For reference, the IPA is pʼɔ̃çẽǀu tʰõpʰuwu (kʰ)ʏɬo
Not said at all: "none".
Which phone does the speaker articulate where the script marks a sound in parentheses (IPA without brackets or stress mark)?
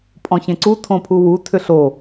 tʰ